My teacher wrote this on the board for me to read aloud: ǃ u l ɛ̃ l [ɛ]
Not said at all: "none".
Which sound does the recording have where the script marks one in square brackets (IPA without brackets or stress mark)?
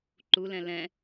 ɛ̃